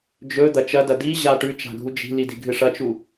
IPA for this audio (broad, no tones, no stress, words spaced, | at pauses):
d͡ʒɵ d̪ɐt͡ʃɐdɐ diʑa ʈʉ t͡ʃa̤ɡʱud͡ʒi̤lid i̤ɡʱɨʂɐt͡ʃu